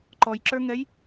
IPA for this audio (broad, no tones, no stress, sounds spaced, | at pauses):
ǃ ɔ j ǁ ə˞ ŋ ɛ j